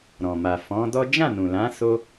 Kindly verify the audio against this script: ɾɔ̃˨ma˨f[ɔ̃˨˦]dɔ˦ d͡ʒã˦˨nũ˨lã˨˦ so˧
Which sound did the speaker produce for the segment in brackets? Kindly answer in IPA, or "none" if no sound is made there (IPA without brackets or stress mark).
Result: ɔ̃˨˦